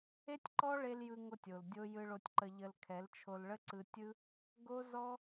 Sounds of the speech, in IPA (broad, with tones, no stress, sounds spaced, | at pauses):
e˦ tʲ ǃ ɔ˦ ɭ e˧ l j ɯ˧ ŋ o˧ tʲ o˨ l dʲ o˦ j ɯ˧ ɭ o˧ tʲ ǃ ə˧ ʎ ə˧ l kʰ ɛ˨˦ l t͡ʃʰ o˧ l ɭ ə˦ ǀ ɯ˧ tʲ ɯ˦ | ɡ o˦ z ɔ˦